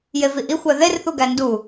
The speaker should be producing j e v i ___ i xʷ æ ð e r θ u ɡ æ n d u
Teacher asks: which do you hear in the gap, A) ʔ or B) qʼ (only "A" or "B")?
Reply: A